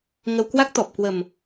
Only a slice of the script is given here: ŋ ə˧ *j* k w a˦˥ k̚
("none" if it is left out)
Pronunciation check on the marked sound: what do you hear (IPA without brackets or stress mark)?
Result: w